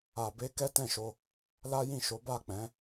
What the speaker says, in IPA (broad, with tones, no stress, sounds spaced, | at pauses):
a˧ b e˦ k ɛ˦ t ɛ̃˦˨ ʃ o˧ | l a˦ j ĩ˦˨ ʃ o˨˦ b a˦˨ k͡p ɛ̃˨˦